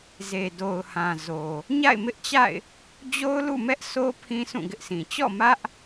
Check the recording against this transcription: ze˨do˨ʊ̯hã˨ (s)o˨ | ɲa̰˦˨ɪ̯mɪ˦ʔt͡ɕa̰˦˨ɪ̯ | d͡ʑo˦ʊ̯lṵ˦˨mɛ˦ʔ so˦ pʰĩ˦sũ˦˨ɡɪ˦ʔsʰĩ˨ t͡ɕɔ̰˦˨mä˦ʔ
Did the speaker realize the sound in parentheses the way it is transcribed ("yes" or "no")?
no